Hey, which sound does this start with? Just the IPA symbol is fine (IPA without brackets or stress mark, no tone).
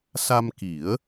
s